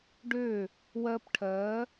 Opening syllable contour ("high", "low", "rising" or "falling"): falling